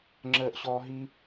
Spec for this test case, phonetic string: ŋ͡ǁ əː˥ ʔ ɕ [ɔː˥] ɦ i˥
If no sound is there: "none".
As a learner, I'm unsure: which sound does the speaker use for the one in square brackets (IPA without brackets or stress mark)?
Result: ɔː˥